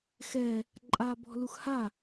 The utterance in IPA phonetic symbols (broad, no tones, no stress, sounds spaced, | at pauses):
x ɛ | ǃʼ aː b ɔ̤ l u x h a